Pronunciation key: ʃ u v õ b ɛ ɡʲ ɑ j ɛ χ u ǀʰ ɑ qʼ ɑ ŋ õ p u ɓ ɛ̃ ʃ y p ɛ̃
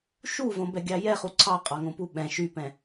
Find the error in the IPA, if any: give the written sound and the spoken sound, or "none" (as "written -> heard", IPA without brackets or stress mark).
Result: none